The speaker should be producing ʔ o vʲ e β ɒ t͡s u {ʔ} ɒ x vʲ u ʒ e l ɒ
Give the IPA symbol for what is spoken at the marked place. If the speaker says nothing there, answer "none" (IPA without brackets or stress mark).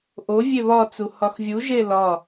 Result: h